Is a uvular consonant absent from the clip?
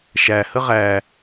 no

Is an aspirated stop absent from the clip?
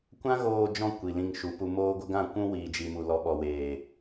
yes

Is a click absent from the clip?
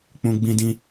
yes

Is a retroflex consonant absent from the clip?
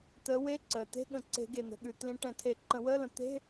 no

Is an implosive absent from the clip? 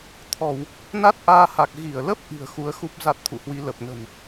yes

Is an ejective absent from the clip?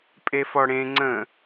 no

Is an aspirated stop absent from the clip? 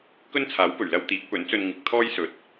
no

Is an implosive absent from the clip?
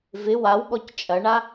no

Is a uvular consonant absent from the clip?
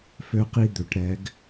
no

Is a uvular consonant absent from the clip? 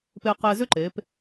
no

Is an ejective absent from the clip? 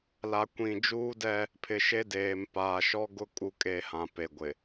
no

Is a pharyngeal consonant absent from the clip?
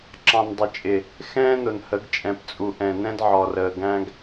no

